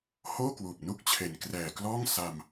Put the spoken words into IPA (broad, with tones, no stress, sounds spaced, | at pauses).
h oː˥˩ k w uː˨˩ p̚ n u˥˩ k̚ t͡ɕʰ e˨˩ n k r ɛː˨˩ k l ɔː˥˩ ŋ s a˧ m